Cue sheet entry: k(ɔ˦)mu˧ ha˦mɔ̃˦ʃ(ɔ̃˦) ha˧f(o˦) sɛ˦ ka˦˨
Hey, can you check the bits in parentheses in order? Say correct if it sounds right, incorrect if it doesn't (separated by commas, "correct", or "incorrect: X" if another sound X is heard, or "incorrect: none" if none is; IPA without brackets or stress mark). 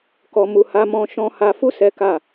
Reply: incorrect: ɔ˧, correct, incorrect: u˦